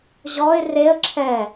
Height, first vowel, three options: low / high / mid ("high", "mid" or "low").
mid